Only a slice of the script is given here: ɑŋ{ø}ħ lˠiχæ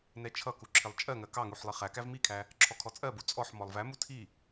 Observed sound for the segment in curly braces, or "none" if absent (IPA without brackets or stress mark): u